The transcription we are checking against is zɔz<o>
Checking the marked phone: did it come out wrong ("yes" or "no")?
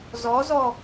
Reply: yes